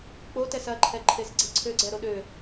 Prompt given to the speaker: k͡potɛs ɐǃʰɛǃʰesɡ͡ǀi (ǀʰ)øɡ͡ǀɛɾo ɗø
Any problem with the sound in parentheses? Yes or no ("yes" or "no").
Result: no